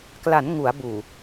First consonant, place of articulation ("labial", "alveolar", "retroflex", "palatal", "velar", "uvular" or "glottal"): velar